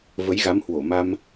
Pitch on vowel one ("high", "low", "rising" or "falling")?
rising